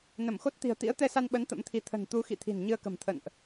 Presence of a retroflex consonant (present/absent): absent